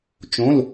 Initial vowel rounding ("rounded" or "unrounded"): rounded